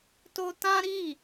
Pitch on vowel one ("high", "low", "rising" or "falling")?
high